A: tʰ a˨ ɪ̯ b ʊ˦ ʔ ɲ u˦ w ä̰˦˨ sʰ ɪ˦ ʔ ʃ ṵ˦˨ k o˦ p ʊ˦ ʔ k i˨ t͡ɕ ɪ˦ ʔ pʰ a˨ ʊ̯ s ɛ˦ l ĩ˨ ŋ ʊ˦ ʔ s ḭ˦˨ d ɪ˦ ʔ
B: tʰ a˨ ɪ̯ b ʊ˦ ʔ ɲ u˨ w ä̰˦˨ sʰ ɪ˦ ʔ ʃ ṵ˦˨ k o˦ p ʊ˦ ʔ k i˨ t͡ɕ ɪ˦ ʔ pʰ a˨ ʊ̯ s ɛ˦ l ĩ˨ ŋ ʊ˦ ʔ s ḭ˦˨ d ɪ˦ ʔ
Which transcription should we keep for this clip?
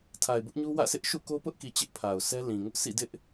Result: A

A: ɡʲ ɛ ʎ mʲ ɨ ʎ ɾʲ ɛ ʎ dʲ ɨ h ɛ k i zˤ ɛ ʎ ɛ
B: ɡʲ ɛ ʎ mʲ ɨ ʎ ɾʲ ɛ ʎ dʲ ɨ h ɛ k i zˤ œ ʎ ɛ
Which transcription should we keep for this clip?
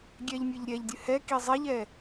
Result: A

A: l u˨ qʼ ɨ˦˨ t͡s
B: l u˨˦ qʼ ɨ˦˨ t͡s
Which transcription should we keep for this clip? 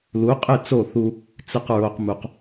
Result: B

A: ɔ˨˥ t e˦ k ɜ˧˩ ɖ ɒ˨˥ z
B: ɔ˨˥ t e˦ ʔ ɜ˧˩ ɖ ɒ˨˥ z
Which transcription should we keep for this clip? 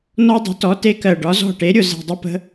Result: A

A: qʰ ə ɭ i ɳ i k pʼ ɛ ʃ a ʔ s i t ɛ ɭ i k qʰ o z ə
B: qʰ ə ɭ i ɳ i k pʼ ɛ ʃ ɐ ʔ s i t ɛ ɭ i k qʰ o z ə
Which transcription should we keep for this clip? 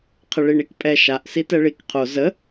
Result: A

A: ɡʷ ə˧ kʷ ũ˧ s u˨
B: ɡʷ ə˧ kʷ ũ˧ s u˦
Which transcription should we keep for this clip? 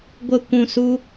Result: B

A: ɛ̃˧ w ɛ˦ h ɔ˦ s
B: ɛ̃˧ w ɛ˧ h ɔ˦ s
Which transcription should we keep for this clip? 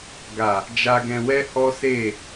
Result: A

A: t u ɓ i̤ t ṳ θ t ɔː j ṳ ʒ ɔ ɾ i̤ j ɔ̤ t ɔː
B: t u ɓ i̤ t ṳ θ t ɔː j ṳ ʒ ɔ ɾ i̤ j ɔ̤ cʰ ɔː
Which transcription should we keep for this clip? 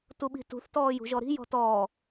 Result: A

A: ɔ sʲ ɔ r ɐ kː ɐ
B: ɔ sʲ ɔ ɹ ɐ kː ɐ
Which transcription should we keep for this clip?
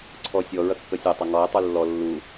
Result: B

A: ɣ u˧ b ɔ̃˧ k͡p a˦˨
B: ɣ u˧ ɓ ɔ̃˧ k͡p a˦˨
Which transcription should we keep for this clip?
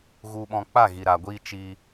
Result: B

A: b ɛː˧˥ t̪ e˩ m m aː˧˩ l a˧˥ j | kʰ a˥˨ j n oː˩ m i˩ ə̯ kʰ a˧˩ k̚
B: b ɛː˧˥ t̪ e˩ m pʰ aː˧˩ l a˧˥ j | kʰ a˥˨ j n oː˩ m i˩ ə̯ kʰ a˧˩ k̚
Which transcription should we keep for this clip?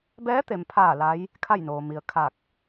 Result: B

